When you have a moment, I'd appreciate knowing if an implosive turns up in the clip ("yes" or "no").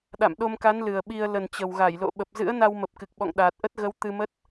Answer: yes